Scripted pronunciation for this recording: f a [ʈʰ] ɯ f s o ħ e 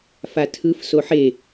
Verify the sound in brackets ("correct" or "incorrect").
incorrect